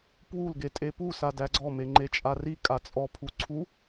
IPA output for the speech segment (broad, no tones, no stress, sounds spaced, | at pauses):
p w u l ɡ e tʼ e p u s a d æ ɡ͡ǀ ɔ m e ŋ͡ǃ e t͡ʃʼ a r i kʼ a t͡sʼ ɔ pʰ u ǀʰ u